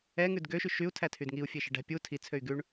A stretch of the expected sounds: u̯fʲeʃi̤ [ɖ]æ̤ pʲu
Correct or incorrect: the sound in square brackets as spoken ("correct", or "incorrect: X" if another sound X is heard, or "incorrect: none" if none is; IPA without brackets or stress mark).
correct